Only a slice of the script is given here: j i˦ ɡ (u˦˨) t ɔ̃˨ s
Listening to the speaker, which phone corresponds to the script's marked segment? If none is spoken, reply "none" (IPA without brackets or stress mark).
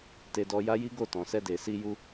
o˦˨